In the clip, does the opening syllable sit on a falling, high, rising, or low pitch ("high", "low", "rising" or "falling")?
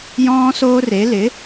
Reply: high